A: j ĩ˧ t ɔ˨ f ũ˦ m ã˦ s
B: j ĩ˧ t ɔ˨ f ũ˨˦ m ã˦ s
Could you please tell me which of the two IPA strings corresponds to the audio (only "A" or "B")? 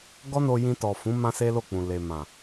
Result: B